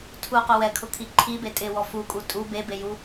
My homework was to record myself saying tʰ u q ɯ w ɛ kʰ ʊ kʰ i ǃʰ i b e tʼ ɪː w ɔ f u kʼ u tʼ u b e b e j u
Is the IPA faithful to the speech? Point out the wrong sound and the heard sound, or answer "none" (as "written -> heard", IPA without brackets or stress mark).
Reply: ɯ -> ʊ